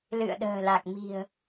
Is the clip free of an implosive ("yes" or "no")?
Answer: no